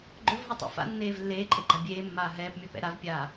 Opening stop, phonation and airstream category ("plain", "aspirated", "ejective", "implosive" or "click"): click